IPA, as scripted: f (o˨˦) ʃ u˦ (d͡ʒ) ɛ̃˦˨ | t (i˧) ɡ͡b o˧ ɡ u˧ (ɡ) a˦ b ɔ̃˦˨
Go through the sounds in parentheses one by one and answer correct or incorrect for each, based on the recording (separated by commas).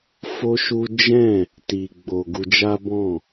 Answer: incorrect, correct, correct, incorrect